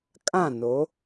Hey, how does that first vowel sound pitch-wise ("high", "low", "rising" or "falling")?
falling